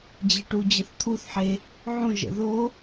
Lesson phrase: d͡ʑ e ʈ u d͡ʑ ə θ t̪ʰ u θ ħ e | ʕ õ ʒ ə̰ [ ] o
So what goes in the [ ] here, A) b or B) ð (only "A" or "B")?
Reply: B